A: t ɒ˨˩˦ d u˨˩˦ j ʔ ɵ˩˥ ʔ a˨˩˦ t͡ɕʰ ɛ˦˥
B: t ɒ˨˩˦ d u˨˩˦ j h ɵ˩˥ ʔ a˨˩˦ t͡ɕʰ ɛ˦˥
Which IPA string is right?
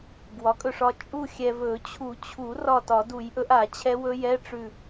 A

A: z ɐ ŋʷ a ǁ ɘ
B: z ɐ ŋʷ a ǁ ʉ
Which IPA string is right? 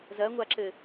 A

